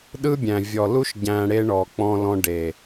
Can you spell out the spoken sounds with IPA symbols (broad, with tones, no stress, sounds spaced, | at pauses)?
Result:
ɗ ɯ˦ bʲ æ̃˨ vʲ ɔ˨ l u˦ ʃ ɟ æ̃˨ ɽ e˦ ɳ ɔ˨ k͡p ɔ̃˨ l ɔ̃˦ ɖ e˨